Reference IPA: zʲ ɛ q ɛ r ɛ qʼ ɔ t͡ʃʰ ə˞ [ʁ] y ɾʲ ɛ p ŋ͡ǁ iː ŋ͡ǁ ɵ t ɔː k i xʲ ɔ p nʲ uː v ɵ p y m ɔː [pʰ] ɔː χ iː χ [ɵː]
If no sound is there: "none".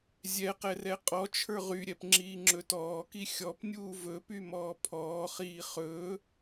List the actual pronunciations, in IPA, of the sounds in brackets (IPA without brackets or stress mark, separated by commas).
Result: ʁ, pʰ, ɵː